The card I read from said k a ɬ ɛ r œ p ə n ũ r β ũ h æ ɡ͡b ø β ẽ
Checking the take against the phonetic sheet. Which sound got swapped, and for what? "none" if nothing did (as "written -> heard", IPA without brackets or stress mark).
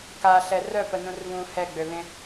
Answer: æ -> ɛ